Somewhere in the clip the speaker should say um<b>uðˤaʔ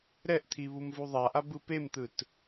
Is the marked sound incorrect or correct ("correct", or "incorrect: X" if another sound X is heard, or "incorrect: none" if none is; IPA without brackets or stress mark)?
incorrect: v